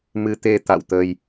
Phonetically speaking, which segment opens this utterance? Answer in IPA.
m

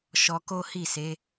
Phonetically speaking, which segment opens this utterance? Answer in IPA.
ʃ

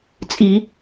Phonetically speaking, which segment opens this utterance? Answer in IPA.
t͡sʼ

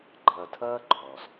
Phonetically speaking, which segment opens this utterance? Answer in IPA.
ɡ͡ǃ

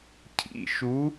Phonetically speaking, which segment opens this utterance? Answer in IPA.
cʰ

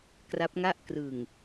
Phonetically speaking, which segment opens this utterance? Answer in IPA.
k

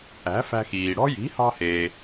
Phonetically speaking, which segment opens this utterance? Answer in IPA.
æ̤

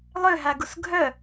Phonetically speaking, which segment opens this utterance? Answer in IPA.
lˠ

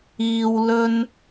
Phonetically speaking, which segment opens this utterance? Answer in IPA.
iː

